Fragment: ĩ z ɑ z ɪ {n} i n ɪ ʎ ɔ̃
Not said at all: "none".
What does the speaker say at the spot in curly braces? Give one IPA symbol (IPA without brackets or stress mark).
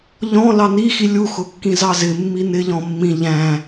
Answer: mː